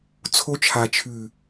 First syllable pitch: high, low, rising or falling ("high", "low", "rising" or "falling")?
high